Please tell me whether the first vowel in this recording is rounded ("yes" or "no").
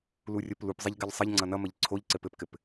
yes